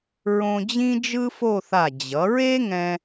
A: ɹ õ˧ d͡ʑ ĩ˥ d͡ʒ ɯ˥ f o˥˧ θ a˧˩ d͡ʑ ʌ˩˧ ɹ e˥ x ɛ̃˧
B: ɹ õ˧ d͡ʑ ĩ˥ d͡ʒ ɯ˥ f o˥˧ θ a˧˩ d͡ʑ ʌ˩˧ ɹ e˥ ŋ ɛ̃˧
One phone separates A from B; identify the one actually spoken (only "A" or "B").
B